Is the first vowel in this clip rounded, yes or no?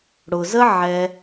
yes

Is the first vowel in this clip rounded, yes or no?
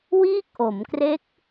no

